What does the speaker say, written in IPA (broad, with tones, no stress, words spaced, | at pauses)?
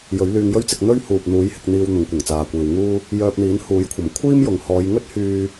jɵ˨˥ɥlyː˧ŋjɵ˥ɥt͡sɪ˧k̚ n̪ɵ˥ɥhuː˨p̚ n̪uː˨˥jhɪ˧k̚n̪iː˧w n̪ʊ˨˧ŋkʷɐ˨˩ŋt͡saː˨kʷiː˨w ŋuː˧ | jœː˧p̚n̪iː˨˥nhuː˨˥jkʷʰɐ˨˩m kʷʰiː˥mjʊ˨ŋ hɔː˨˧jŋɵ˥t̚hyː˧